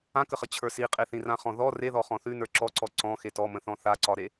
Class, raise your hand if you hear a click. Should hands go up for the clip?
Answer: yes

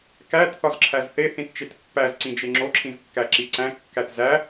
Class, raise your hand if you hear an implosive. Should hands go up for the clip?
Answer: no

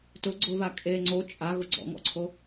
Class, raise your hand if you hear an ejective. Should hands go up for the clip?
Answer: yes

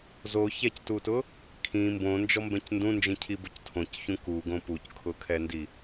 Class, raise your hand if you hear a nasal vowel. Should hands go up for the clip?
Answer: yes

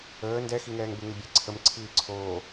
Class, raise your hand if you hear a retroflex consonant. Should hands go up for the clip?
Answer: no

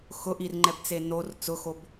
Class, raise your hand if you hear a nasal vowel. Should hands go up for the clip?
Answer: no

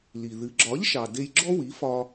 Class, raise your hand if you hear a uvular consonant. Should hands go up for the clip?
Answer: no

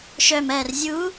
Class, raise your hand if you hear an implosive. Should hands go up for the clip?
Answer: no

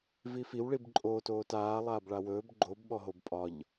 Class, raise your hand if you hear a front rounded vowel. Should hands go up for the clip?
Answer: no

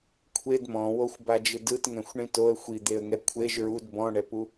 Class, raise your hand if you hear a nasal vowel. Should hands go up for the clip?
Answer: yes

